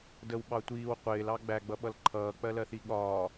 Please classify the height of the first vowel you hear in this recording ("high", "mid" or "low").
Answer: mid